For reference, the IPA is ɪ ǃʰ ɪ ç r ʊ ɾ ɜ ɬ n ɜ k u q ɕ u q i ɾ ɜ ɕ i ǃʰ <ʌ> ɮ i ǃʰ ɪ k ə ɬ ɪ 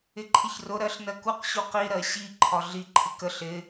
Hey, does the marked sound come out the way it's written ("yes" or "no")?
no